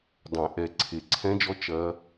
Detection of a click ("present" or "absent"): present